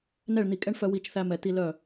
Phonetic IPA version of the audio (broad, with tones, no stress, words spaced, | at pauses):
nɛ˥˨ɭn̪i˧˩˧kʼɛ˥ɳ fœ˥wi˥˨t͡ʃθæ˥ mɛ˧˩˧t̪i˥ lœ˥˨